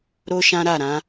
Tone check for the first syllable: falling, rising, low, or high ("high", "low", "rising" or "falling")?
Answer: high